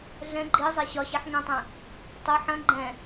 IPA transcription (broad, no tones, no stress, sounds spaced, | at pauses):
ɮ ɛ̃ ɡ͡ǃ i zˤ ɛ ɕ ɒ ɕ ɛ ħ ŋ ɛ̃ tˤ ɛ̃ | tˤ ə ħ ɐ̃ ɡ͡ǃ ɛ̃